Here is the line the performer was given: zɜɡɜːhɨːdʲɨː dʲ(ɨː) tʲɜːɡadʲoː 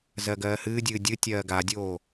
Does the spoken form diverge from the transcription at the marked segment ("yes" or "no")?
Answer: yes